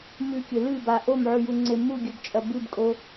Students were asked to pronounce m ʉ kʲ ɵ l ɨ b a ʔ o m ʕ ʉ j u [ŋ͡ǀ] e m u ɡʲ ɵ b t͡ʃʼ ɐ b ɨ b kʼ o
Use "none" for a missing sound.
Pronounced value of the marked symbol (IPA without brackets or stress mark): ŋ͡ǀ